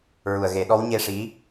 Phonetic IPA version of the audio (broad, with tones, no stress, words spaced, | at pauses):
ɹu˨˩ə̯ɣe˨˩˦ɗɔ˧˥w ɲe˧ʂi˧˥